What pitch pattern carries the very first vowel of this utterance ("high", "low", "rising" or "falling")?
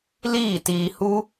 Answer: falling